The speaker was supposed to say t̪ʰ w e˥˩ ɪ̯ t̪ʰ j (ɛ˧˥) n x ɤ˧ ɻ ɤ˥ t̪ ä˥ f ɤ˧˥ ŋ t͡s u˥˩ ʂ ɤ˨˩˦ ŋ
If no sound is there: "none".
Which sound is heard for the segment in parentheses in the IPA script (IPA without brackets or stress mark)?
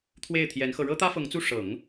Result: ɛ˧˥